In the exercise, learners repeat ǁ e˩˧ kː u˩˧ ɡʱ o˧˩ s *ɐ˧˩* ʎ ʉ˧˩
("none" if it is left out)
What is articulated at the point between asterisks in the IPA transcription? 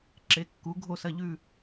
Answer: ɐ˧˩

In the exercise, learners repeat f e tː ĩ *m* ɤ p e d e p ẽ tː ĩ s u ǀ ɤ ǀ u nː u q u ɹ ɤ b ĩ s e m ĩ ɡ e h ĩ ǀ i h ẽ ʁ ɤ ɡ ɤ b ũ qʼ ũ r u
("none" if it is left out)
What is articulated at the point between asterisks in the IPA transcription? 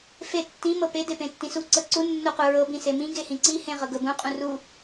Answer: m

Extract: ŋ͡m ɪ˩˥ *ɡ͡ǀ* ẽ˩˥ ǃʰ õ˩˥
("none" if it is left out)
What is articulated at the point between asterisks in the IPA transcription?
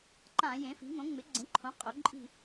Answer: ɡ͡ǀ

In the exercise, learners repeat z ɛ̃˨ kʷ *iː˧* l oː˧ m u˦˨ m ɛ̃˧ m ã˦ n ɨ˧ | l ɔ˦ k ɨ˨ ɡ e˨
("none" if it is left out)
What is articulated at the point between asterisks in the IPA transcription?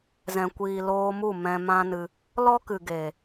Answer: iː˨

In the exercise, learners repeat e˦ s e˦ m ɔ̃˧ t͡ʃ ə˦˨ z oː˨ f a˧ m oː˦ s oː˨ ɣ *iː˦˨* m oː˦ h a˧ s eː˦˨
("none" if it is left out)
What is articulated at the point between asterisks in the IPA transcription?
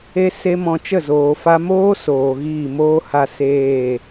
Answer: iː˦˨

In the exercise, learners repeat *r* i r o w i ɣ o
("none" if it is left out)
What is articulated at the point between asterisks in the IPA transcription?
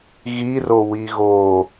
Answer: ɣ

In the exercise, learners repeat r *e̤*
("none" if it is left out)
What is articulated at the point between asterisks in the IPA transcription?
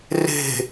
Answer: e̤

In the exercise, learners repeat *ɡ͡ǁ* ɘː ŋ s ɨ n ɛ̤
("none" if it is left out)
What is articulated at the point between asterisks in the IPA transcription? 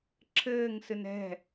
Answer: ǁʰ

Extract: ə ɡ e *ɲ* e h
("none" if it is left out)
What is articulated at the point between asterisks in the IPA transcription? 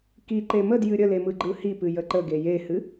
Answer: j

